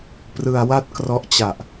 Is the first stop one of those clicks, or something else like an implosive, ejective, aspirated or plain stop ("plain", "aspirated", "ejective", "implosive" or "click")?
plain